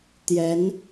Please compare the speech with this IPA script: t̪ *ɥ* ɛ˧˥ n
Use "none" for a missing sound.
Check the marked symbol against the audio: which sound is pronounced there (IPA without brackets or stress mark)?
j